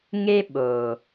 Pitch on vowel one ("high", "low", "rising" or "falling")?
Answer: high